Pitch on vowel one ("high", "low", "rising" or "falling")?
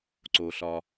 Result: low